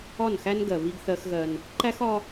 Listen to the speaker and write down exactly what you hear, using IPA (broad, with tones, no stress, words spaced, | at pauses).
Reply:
ɒ˦˨nxæ˦nɡɜ˨ βi˦ɡθɜ˦xɣɜ˦n | ǃæ˦xɒ˦